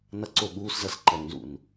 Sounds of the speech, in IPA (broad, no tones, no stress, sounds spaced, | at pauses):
n ʌ ǀ o ɠ uː s z ʌ s ǃ ʌ ŋ n z ṵ n